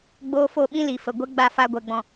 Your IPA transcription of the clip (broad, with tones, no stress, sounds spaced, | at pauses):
ɡ͡b oː˦ f o˦˨ ɓ ĩ˦ l i˨ f ə˨ ɡʷ ɛ˦ ɡ͡b a˦˨ f a˧ ɡʷ ɛ˨ ɡ͡b ɔ̃˨